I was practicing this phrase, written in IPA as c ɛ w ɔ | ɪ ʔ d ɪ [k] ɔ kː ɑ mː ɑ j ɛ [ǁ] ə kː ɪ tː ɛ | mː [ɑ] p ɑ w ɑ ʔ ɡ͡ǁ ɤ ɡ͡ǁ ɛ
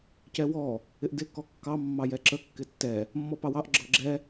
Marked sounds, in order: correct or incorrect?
correct, correct, incorrect: ɔ

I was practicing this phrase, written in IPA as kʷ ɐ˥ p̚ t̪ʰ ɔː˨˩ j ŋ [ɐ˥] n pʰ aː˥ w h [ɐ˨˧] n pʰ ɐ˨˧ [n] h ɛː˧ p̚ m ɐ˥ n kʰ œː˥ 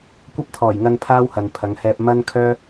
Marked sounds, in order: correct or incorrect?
incorrect: ɐ˧, incorrect: ɐ˨, incorrect: ŋ

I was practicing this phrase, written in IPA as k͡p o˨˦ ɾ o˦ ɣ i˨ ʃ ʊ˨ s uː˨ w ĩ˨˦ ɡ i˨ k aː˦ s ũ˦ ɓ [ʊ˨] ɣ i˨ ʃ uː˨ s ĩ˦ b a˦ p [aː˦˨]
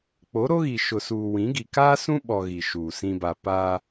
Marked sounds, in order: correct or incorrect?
incorrect: ɔ˨, incorrect: aː˦

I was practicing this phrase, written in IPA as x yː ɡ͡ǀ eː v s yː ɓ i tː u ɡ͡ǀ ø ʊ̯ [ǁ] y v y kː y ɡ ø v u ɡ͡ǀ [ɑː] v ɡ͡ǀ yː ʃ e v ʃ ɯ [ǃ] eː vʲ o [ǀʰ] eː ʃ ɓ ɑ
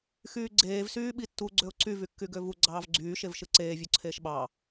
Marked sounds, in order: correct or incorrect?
incorrect: ǀ, correct, incorrect: ǀ, correct

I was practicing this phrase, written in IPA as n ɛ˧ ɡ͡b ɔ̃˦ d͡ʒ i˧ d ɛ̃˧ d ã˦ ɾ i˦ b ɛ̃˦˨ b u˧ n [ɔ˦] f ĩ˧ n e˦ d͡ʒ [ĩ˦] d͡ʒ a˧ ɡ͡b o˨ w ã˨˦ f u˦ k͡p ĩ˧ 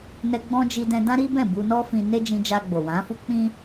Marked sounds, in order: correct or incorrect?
correct, incorrect: ĩ˧

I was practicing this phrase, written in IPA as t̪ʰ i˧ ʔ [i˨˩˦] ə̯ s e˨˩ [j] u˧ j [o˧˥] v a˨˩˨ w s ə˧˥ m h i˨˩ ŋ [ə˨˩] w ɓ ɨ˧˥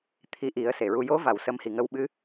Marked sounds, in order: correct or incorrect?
correct, incorrect: ɹ, correct, incorrect: ə˧

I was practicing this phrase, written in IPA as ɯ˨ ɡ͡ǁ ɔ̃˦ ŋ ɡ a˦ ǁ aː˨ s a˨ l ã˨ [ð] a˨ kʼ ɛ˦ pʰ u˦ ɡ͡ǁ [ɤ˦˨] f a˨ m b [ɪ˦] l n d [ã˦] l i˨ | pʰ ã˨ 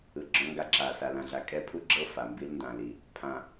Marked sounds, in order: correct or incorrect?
incorrect: ɮ, correct, incorrect: i˦, incorrect: ã˨

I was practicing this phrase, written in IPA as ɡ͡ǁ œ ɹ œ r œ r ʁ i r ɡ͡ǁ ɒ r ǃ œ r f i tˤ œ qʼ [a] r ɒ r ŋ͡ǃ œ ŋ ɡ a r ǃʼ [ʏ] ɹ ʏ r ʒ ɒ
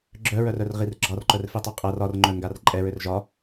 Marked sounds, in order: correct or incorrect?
correct, incorrect: ɛ

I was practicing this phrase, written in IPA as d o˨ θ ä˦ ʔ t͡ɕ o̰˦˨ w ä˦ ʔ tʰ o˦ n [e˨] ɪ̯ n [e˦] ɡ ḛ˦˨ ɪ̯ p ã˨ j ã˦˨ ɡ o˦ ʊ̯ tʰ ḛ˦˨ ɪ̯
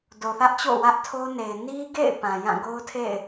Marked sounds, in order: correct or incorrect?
correct, incorrect: i˦

